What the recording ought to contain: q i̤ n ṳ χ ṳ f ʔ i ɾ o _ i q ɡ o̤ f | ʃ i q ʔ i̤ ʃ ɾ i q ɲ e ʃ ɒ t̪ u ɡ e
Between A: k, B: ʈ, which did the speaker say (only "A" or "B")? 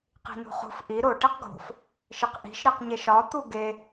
B